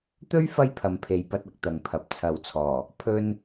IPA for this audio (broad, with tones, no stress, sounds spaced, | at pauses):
t̪ ɵ˥ ɥ f ɐ˥ j pʰ ɐ˨˧ m pʰ e˨˧ j p ɐ˧ t̚ ɐ˧ k̚ t̪ ɐ˨ ŋ pʰ ɐ˨˥ p̚ t͡sʰ ɐ˨ w t͡sʰ ɔː˨˩ | pʰ ɵ˧ n